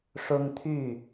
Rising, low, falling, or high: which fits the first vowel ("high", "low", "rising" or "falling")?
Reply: high